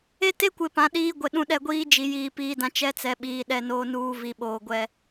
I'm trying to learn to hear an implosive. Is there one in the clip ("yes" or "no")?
yes